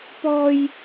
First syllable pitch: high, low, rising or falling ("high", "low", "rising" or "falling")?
high